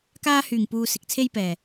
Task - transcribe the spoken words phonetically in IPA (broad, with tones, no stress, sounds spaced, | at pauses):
k aː˥ h yː˨˩ ŋ p uː˨ s ɪ˨ k̚ t͡sʰ e˥ j p ɛː˨˩